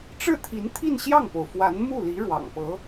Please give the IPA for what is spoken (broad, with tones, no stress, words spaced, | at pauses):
ʈ͡ʂɻ̩˥˩t̪ʰi˧˥nt̪ʰi˥˧n ɕjɑ˥˩ŋpo˩ʊ̯ fwa˧˥nmu˥˩li˧˥ ɻwɑ̰˨˩ŋpɤ˧˥